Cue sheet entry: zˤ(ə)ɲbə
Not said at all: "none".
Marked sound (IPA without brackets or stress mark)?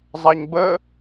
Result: a